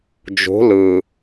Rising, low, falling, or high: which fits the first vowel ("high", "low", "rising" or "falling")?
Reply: rising